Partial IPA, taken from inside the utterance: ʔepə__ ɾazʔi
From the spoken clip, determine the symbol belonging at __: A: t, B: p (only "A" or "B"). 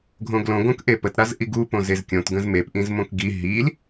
A